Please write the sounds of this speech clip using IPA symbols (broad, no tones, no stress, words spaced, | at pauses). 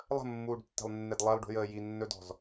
lˠə̤mːuːɖtːe̤lˠnːed lˠɛlˠɖṳjəː jinːɵdɔ̤z